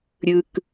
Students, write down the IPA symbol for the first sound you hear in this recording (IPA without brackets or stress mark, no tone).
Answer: ɾʲ